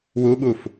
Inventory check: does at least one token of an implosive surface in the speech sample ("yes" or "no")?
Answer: yes